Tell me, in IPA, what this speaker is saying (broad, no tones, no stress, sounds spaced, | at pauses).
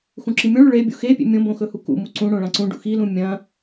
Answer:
x ũ ǁ i mʲ õ ɭ ʉ ɭ e bʲ ṵ x e pʲ ḛ mʲ õ b õ x ɵ h u k ṵ m u ǀ ũ ɽ õ ɭ ã ǀ ũ ɖ ṵ x i l ũ mʲ ɐ̃